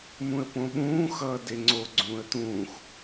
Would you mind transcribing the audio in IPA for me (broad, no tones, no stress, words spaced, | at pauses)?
mũə̯põɓũː xʌːdeŋ͡ǀo ɡ͡ǀũːə̯t̪ũːx